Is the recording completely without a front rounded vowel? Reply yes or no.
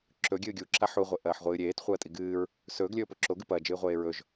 yes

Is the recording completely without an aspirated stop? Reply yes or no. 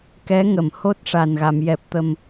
yes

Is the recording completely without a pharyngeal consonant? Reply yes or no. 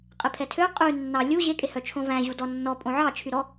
no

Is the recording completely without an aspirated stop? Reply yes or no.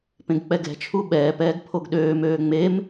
no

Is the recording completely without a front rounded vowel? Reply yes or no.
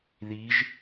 yes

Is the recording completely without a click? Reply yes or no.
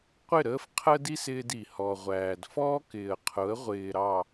yes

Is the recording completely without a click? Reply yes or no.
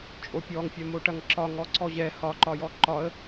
no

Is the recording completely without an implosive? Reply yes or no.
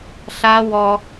yes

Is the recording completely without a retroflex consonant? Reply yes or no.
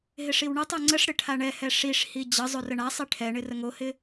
no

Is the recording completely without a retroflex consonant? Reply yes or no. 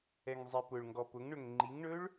no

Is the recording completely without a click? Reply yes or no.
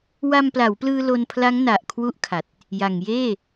yes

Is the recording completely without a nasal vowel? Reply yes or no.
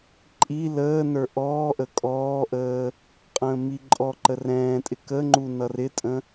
no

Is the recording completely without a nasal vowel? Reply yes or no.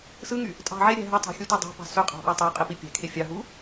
yes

